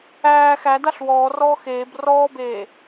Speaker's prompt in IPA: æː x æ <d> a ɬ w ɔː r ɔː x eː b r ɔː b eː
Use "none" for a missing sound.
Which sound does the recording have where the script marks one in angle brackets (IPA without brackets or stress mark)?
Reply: d